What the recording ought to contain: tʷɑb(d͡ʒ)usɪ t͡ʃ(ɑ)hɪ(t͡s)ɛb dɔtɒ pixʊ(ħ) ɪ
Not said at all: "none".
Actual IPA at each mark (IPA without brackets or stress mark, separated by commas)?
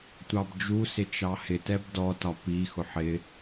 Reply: d͡ʒ, ɑ, t, ħ